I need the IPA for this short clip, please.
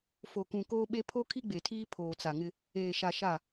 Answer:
f o˨ k ũ˨ k oː˦ ɓ e˦ pʰ o˦ kʰ i˦ ɡ͡b e˨ tʰ iː˦ pʰ oː˨ t͡s a˨ ŋ ɪ˦ | eː˨ ʃ a˨ ʃ a˦˨

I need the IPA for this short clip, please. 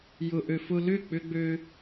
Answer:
j ʊ˧ ʔ ø˧ f ʊ˧ l ʏ˦˨ k͡p ʏ˦ ɡ͡b ø˦

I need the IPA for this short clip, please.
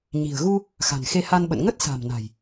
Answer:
ɲ i̤˨˩ ə̯ ɣ u˧ | x a̤˨˩ n x e˧ h a˧ n ɓ ə̰˧˨ n ŋ ə˦˥ t̚ s a̤˨˩ m n a̤˨˩ j

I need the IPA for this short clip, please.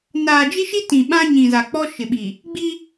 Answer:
n aː˨ d͡ʒ i˦ ʃ i˦ t ĩ˨ ɓ ã˦ ɲ ĩ˨ z a˨ k͡p ɔ˦ ʃ ɪ˨ ɓ i˨ | ɡ͡b i˦

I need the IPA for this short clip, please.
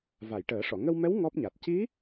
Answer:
v a˨˩˨ j ʈ əː˨˩˦ ʂ ɔ˨˩˨ ŋ ə˧ w m ɛ˧˥ w ŋ ɔ˦˥ p̚ ɲ a˨˩ t̚ c i˧˥

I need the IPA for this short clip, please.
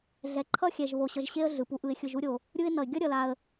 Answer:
ɮ ɛ˨ ǃʰ ʌ˥ xʲ ɛ˨ ʒ β o˨ ɕ ʌ˨ ʒ ɕ e˦ ə̯ ɮ ɯ˩ p u˨ ʔ ɯ˨ ɪ̯ xʲ ɯ˨ ʒ u˦ ɾʲ o˩ | ɾʲ ɯ˦ ɪ̯ n ʌ˨ ɪ̯ ɡʲ ʌ˥ ɾʲ ʌ˨ l a˨ ə̯

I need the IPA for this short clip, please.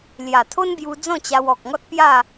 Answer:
l j a˨˩ t̪ʰ o˦ n b j u˧ d͡z ɔ̃˥˧ t͡ɕ a˧ w ɔ˨ k̚ ŋ ɔ˦ t̚ p j a˥˧

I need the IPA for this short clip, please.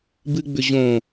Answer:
b ɨ ɡ͡b ʏ ʑ õ

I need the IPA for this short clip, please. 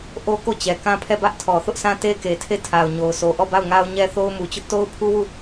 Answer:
ʔ o˦ k o˦˨ t͡ɕ ɛ˨ k ã˦ pʰ ɛ˦˨ b ä˦ ʔ tʰ ɔ˨ θ ʊ˦ ʔ s ã˦ t e˦ k e˨ tʰ e˦˨ tʰ a˨ ʊ̯ ɲ o˨ ʊ̯ s o˨ ʔ ɔ˦˨ b a˦˨ ʊ̯ ŋ a˦ ʊ̯ ɲ ɛ˦ θ o˦ ʊ̯ m u˨ t͡ɕ ʊ˦ ʔ t o˦ ʊ̯ pʰ u˦ w u˦˨

